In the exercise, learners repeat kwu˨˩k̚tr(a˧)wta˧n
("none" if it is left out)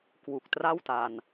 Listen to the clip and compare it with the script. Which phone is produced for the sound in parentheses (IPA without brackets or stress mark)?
a˥˩